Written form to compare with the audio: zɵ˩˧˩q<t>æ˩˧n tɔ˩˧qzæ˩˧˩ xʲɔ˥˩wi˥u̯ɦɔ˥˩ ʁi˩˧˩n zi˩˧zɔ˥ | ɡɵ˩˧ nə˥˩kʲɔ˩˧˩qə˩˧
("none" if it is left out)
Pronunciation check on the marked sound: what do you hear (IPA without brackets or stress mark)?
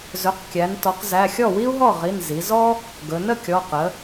kʲ